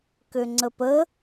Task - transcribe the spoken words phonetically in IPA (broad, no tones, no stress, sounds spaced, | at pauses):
k ø ŋ͡ǀ ə p ə